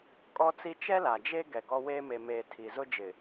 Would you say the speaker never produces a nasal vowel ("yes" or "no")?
yes